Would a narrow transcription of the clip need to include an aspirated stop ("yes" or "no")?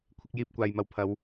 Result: yes